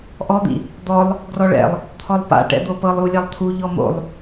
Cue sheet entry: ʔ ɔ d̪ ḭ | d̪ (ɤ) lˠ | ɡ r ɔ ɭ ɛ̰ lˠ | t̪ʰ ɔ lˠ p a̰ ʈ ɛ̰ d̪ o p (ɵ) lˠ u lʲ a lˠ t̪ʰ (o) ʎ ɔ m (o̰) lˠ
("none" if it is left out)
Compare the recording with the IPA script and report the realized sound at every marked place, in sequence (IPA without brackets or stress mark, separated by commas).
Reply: ɔ, ɤ, u, o̰